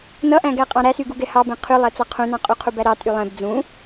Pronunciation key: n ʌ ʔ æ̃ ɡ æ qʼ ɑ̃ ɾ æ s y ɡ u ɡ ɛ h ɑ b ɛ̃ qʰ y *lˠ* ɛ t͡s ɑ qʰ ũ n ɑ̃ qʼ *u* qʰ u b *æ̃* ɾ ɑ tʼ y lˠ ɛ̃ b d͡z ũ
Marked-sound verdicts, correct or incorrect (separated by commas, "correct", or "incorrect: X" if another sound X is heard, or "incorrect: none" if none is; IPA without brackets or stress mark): correct, correct, incorrect: æ